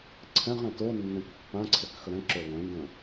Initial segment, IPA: ǀʰ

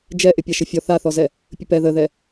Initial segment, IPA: d͡ʒ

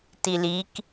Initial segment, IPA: t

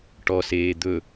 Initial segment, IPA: ʈ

